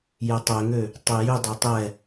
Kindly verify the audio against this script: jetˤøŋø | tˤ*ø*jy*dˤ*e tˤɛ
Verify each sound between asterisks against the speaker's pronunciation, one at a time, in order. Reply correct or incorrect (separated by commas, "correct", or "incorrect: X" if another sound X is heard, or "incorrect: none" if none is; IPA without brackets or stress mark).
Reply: incorrect: e, correct